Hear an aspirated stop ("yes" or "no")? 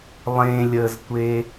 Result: no